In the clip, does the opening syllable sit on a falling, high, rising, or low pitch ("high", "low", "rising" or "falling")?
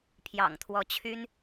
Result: low